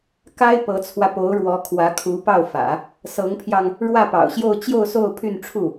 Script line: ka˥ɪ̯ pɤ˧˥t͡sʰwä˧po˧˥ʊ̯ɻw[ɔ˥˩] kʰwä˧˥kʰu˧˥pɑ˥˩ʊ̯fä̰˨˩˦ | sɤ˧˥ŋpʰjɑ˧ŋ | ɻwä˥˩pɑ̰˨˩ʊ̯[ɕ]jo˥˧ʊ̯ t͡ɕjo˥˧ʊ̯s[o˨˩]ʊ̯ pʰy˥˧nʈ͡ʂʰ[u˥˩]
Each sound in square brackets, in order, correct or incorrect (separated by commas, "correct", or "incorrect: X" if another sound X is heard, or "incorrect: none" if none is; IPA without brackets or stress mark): incorrect: ɔ˧˥, correct, incorrect: o˥˧, correct